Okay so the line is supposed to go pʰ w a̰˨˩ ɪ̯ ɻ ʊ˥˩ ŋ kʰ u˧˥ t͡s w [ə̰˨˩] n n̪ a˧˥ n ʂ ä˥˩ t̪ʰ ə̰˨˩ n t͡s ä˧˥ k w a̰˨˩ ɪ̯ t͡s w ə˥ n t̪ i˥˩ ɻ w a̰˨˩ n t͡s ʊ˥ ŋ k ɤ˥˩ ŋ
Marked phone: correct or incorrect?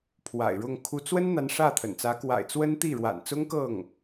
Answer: incorrect